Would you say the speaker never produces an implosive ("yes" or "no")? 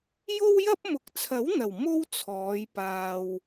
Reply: yes